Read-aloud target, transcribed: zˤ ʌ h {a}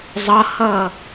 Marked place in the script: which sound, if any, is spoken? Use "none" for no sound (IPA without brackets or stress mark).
ʌ